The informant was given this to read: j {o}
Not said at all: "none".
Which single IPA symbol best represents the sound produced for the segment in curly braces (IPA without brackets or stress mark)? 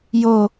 o